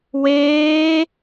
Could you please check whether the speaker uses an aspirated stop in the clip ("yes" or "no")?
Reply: no